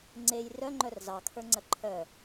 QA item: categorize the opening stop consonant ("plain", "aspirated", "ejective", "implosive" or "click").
click